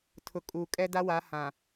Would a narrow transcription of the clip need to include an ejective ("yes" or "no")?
yes